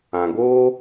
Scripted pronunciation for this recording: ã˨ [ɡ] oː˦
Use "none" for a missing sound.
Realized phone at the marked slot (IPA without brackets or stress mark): ɡ